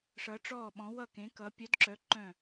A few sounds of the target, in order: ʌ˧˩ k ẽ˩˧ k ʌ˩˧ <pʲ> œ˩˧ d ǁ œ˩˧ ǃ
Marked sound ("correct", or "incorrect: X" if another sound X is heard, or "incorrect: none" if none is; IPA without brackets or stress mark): correct